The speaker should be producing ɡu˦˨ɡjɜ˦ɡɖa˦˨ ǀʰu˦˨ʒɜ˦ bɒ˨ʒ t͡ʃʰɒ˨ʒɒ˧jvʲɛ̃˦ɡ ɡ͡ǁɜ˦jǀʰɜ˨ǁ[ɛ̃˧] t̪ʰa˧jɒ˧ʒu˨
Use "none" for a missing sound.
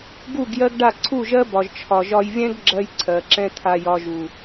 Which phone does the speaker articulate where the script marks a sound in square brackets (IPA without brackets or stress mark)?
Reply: ɛ̃˦